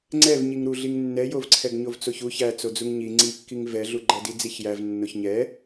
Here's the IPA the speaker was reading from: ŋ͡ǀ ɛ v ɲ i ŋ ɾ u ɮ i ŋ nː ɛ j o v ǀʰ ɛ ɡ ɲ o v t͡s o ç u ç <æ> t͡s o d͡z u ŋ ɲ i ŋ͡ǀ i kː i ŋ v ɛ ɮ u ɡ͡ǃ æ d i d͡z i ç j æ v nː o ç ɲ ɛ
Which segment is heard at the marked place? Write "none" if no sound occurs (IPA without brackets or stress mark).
æ